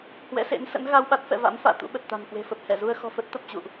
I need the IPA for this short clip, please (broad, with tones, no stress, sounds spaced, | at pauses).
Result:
h w ɛ̰˧˥ s ḛ˧˥ n s ə̰˧˥ n ɣ a˧ w ɓ a˦˥ t̚ f ɛ̰˧˨ v a̰˧˥ m f a̰ː˧˨ t̪ ṵ˧˥ ɓ ə˨˩ t̚ t̪ a̤˨˩ n k w e̤˨˩ f ə˨˩ p̚ h ɛ˧˩ z u˧ ə̯ x ɔ̤˨˩ f ə˦˥ t̚ t̪ ə˨˩ p̚ t͡ɕ ṵ˧˨ ʔ